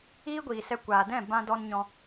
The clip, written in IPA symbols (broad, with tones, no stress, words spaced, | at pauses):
iː˦ɡʷiː˨sɛ˧ kʷaː˨dɛ̃˦˨ bã˧dɔ˧n ɲɔ̃˧